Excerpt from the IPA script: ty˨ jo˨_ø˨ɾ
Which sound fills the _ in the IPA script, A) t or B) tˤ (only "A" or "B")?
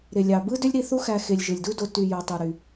B